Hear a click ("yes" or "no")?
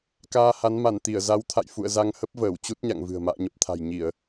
no